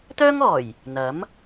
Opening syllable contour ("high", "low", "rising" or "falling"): high